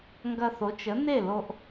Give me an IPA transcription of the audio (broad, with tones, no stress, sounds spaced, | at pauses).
ŋ ɡ ɐ˧ θ o˩˥ t͡ʃ ə˩˥ n e˥˩ l o˧ ʔ